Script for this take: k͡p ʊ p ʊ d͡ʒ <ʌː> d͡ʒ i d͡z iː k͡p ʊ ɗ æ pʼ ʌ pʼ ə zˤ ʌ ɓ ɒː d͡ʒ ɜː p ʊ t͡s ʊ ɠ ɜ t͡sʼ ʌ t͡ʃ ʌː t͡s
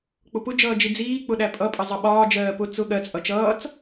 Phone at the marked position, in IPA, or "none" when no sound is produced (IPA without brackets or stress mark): ʌː